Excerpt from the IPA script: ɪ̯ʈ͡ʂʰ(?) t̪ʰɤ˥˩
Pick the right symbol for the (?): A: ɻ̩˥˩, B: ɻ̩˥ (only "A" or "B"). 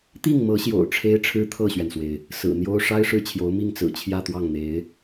B